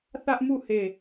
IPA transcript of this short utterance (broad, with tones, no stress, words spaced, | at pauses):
θä˦ʔmu˦˨ he˦˨